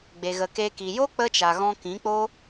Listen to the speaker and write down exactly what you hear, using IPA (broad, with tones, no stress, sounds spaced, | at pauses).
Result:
ɡ͡b e˨ ɣ ə˨ k e˧ k i˨ j o˦ k͡p ə˦ t͡ʃ a˨ ɣ ɔ̃˧ k ĩ˨˦ k͡p o˦